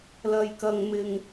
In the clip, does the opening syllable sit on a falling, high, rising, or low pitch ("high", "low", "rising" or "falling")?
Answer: low